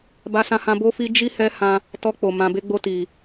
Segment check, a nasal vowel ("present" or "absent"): present